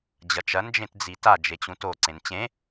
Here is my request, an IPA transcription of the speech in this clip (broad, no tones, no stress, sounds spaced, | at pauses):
d͡ʑ ɐ t͡ʃ ɐ n d͡ʒ ẽ t d͡z i t a d͡ʒ e t͡ɕ ũ t o ǀ ẽ n t͡ɕ ẽ